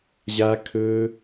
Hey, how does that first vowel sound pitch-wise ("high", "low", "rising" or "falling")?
high